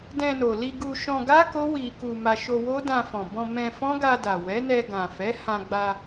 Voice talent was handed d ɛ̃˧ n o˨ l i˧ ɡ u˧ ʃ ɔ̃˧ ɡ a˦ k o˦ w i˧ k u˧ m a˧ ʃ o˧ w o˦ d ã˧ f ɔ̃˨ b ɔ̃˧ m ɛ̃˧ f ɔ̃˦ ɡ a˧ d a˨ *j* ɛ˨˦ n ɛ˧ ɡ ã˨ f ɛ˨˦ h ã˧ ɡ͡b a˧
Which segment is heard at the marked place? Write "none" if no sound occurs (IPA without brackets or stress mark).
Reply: w